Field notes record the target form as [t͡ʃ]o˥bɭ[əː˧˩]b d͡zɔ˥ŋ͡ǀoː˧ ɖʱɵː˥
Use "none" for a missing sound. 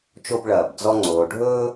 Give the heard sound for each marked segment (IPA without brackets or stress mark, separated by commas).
t͡ʃ, ɐː˧˩